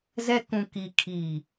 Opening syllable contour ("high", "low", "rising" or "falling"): high